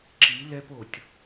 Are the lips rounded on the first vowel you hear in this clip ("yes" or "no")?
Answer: no